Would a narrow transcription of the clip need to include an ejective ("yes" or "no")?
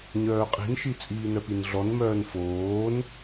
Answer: yes